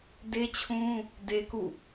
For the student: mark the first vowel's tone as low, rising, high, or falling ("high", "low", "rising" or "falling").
high